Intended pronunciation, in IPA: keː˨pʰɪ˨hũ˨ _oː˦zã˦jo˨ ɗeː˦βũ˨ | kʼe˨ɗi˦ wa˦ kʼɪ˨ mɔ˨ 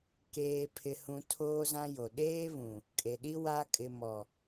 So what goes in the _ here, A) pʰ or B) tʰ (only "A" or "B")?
B